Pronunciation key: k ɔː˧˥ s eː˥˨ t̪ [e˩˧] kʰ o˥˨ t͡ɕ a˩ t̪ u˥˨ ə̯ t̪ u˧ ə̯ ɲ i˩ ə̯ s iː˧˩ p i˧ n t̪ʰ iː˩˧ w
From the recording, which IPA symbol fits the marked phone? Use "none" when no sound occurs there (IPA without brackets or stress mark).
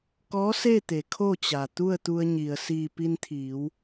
e˩˧